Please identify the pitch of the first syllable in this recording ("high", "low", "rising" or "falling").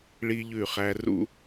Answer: high